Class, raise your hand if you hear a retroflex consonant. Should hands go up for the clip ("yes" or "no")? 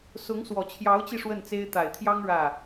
yes